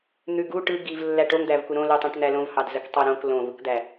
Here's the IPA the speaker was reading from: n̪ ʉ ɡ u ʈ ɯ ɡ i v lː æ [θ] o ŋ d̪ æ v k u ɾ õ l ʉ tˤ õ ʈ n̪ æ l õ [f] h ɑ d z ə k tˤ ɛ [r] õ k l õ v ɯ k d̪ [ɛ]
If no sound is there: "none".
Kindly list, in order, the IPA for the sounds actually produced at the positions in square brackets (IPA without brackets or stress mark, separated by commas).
ʈ, v, ɾ, æ